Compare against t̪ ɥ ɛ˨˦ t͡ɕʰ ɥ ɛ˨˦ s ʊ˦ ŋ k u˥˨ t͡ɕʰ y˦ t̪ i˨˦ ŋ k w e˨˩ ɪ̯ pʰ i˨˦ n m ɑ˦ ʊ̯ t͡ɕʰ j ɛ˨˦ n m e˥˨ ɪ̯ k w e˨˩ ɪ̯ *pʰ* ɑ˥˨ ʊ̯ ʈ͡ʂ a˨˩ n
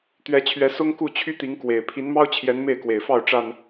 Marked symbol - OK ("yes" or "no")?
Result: no